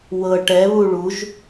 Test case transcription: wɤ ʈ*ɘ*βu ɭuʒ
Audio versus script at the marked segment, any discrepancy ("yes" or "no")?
yes